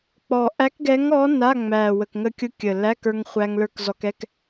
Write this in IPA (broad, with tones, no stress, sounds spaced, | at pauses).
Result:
k͡p ɔ˨˩ ʔ æ˧˥ k ɡ ɛ˧˥ ŋ ɔ˧˥ n a˧˥˧ ŋ͡m æ˨˩ w ə˨˩ k ŋ ə˧ kʲ ʊ˧˥ kʲ ə˨˩ l æ˧˥˧ k ə˞˧ ŋ χʷ æ˧ ŋ l ə˞˧ k z ɔ˧ k ɛ˧˥˧ k